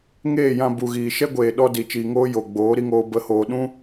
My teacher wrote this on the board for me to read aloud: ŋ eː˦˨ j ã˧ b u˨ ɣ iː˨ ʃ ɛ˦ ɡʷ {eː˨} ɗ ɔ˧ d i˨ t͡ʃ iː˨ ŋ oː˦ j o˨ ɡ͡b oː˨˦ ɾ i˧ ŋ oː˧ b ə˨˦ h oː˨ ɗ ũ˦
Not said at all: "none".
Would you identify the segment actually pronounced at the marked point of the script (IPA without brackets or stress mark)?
eː˨